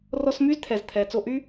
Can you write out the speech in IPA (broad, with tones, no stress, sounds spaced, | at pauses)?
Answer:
r ɔ˧ s m y˦ z t̪ʰ ɛ˨ z t̪ʰ ɛ˨ t͡s o˧ ʔ y˦